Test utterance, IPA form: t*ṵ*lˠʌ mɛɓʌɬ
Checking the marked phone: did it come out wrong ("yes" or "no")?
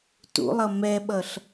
no